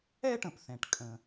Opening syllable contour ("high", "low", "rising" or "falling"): high